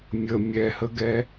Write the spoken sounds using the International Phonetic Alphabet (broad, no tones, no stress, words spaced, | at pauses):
mʲə mʲɛhəɡɛ